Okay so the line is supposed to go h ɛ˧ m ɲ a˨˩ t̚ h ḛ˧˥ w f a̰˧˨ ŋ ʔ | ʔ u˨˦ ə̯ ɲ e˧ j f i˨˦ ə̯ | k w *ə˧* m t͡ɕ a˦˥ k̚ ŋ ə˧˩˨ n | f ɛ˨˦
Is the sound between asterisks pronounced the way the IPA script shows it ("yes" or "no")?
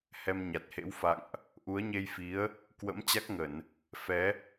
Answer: no